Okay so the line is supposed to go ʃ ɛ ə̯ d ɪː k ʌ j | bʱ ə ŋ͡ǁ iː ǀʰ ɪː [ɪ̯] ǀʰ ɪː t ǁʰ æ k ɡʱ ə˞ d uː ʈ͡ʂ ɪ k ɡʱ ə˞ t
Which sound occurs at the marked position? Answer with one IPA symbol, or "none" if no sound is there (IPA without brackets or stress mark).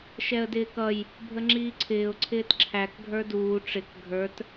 ʊ̯